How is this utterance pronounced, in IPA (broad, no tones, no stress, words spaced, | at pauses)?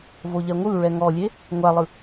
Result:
voʎɛŋʷɯɹɛ ŋɔlʲe | ŋʷalˠɯ